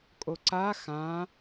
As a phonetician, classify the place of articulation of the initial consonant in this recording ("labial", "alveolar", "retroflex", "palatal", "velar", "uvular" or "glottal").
velar